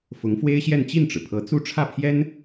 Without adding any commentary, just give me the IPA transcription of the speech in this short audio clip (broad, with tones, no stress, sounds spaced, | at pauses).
f ʊ˧˥ ŋ f w e˥ ɪ̯ ɕ j ɛ˥˧ n t͡ɕ i˥˩ n ʈ͡ʂ ɻ̩˩ pʰ ɤ˧˥ t͡s u˥˧ ʈ͡ʂʰ ä˥˩ pʰ j ɛ˥ n